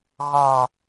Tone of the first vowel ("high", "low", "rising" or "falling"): low